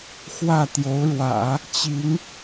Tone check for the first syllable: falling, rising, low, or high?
falling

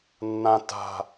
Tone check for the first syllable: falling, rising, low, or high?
low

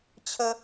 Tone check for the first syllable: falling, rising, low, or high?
high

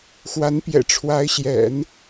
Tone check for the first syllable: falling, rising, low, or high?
rising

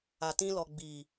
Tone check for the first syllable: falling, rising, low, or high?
low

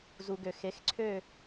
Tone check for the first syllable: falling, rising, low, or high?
low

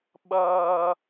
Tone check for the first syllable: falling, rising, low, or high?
high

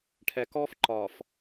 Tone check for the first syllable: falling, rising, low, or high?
low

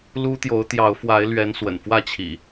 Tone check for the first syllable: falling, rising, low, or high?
high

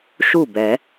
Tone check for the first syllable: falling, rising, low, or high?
falling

